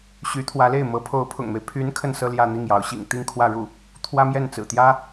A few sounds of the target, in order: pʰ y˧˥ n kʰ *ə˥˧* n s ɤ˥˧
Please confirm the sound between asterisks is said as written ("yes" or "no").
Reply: yes